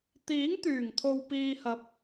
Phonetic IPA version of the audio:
t̪ iː˨˥ ŋ t̪ yː˨˩ ŋ t̪ʰ o˨ w p iː˧ h ɐ˨˥ p̚

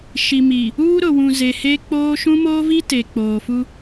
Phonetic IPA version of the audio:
ʃ i˨ m i˨ | uː˦ ɾ ʊ˨ w ũ˨ z e˨ h e˦ k͡p oː˦ ʃ ũ˦ m oː˦ v i˦ t e˨ k͡p oː˨ f u˦

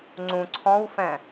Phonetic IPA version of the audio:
ŋ͡ǀ ũ ǀʰ ɔ̃ w f ɛ̃

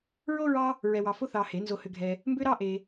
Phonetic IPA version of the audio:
ɹ o˥ ɹ ɑ˥ | ɹ ɛ˧ w ɑ˧ f o˥ θ ɑ˧ h e˨˩˦ n z o˧ h ʏ˧ ɡʱ ɛ˧ | m b ʏ˥ ɾ ɑ˥ ʔ e˧

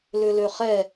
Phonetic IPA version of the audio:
l ʏ l ø χ ɛ

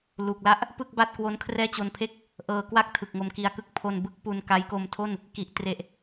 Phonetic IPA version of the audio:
l u˨˩ k̚ l a˦˥ ʔ | p ɯ˥˩ k̚ b a˥˩ t̚ k w o˦˥ n kʰ r ɛː˥˩ t͡ɕ o˧ n pʰ e˥˩ k̚ | ʔ ɤː˧ k w a˥˩ k̚ tʰ ɯ˨˩ k̚ ŋ o˧ m k i˧ a̯ k ɯ˥˩ k̚ pʰ o˧ n b ɯ˥˩ k̚ p u˧ n k a˦˥ j k o˧ m tʰ o˥˩ n | k i˨˩ ʔ t r e˨˩ ʔ

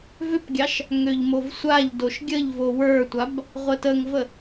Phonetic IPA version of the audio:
v ʏ p ɡʲ ɑ ʃ | ŋ ø ʎ m o v sʷ a ʎ d o ʃ ɡʲ ə ʎ v o w ə˞ tʷ a b | ʁʷ ə t ə ŋ v ə

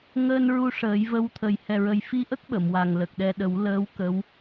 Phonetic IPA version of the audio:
ŋ əː˧ n ɹ u˧ ʂ əː˨˩˦ j v ə˧˥ w t̪ʰ ə˨˩ j h ɛ˨˩ ɹ ə˨˩ j f i˧ ʔ ə˦˥ k̚ ɓ ə˨˩˨ m w a˨˩ ŋ l ə˨˩ k̚ ɗ ɛ˧ ɗ ə˨˩˦ w l əː˧˥ w k ə˧˥ w

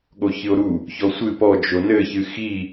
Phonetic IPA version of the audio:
ɠ o ç ɨ o̯ ɾ u | ç ɔ sʷ ɨ p ɔ d͡ʒ o n ɘ ç ɨ x i

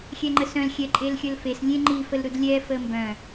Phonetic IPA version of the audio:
xʲ ɛ ŋ͡ǃ ə s œ̃ l xʲ ɛ ǃʼ e l xʲ ə l f e s lʲ ẽ ŋ͡ǃ i f ə l ɾ u d lʲ ɛ f ə m b œ̃

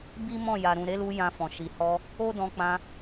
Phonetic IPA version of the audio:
b i˦ m ɔ̃˦˨ j a˨ ɾ ũ˨ ɾ e˨˦ l u˧ j ã˧ f ɔ̃˨ ʃ i˨ h ɔ˧ | o˦ d ɔ̃˧ k͡p ã˧

